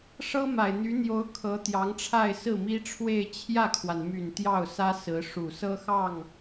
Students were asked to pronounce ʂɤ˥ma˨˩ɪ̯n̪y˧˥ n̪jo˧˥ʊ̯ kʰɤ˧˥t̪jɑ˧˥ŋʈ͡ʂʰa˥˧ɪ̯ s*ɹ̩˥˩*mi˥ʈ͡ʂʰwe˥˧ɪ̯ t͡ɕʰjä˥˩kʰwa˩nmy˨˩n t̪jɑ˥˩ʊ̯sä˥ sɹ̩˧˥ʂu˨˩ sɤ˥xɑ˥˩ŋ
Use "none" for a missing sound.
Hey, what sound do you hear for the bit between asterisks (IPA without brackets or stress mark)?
ɹ̩˥˩